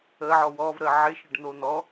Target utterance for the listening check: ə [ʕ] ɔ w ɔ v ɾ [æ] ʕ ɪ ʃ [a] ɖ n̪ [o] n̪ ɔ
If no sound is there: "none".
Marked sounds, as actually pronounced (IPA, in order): ʕ, ə, ə, o

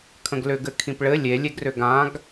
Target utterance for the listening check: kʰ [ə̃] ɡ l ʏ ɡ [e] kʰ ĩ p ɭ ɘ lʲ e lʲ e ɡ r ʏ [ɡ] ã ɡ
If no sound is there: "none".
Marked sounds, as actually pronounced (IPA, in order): ə̃, ɘ, ɡ

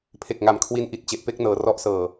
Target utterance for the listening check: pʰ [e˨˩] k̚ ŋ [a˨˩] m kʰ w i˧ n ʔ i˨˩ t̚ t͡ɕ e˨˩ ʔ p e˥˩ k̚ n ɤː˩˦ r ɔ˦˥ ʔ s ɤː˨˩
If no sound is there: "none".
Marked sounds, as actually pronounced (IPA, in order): e˨˩, a˨˩

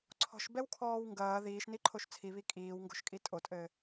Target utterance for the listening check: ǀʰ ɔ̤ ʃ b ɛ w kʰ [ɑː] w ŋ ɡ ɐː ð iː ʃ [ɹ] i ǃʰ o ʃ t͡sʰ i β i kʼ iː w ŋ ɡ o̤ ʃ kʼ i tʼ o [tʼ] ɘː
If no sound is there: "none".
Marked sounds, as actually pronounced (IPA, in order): ɔː, n, tʼ

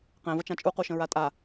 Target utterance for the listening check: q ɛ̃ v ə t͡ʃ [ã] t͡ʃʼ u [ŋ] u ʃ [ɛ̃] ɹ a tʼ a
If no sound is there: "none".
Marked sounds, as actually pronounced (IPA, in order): ã, q, ə̃

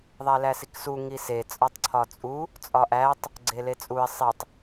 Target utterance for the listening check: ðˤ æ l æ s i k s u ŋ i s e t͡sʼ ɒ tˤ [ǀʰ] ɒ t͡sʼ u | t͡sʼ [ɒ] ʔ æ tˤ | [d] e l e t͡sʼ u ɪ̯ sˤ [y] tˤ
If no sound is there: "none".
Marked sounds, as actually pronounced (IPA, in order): ǀʰ, ɒ, ɡ͡ǀ, i

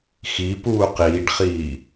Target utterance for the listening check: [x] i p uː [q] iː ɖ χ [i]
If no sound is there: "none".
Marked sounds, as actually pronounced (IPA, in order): x, q, iː

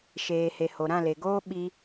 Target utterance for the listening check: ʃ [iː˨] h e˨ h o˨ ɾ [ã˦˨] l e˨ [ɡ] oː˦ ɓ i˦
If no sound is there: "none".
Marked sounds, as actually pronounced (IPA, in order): eː˨, ã˦˨, ɡ

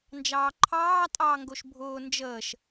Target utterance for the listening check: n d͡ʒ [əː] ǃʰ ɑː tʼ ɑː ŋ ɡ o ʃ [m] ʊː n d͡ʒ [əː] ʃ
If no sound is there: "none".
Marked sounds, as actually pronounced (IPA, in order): ɑː, bʱ, əː

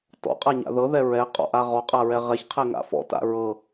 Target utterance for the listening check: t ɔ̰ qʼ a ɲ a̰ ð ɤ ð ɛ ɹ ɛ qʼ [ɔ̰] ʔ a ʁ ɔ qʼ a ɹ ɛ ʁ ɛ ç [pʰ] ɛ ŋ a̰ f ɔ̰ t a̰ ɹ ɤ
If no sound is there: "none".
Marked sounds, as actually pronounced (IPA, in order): ɔ̰, qʰ

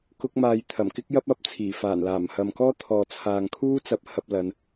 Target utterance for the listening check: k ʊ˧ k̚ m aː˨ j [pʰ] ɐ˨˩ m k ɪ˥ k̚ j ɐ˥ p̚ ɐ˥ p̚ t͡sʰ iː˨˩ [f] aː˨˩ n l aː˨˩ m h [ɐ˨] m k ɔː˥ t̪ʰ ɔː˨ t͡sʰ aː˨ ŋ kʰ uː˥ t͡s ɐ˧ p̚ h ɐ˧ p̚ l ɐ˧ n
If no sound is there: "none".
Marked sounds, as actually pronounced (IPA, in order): t̪ʰ, f, ɐ˨

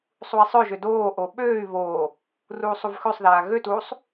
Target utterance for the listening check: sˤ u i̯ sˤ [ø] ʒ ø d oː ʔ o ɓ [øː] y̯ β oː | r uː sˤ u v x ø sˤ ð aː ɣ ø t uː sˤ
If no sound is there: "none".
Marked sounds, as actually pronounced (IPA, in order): ø, øː

